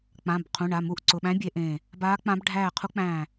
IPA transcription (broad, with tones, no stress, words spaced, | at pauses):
k͡pã˩˧˩b qʰũ˩˧˩ɳa˩˧˩ mu˧˩ʔǀʊ˩˧˩ɓæ̃˧˥ bʲe˧˥ʔẽː˧˩ | baː˧˥k͡pã˧˥b ɖʱæː˧˩ qʰu˧˥ k͡pæ̃ː˧˩